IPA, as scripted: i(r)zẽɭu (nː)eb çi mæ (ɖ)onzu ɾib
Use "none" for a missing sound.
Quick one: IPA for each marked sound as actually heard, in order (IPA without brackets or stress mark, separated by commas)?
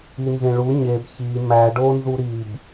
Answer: n, ɲ, ɖ